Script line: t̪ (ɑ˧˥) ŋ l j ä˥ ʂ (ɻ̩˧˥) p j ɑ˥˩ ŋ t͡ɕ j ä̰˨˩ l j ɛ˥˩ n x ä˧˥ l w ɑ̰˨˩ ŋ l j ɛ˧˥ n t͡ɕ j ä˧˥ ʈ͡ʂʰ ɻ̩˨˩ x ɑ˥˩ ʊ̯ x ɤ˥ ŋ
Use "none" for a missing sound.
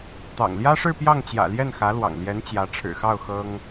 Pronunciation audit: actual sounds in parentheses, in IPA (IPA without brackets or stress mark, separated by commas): ɑ̰˨˩, ɻ̩˥˧